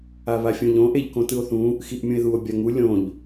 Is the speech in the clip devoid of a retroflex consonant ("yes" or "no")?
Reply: yes